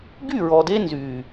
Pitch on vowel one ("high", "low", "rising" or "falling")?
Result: falling